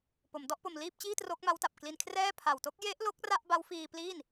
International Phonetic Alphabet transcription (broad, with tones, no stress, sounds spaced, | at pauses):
p o˩˦ m d ɔ˥˩ ʔ p o˧ m l iː˥˩ p̚ t͡ɕ iː˥˩ t r o˦˥ k̚ m a˦˥ w t a˨˩ p̚ k l i˧ n kʰ r ɛː˥˩ pʰ a˨˩ w t o˦˥ k̚ j e˦˥ ʔ l o˦˥ k̚ r a˥˩ ʔ b a˦˥ w f iː˧ p l iː˥˩ n